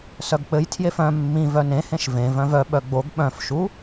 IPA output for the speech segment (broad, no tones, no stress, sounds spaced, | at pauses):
s œ ɡ k͡p ɘ j tʰ j e f œ̃ mː ĩ v œ n ẽ h ẽ ʃ v ẽ v œ̃ v œ ɓ œ ɡ͡b o ɡ ɓ œ̃ f ʃ u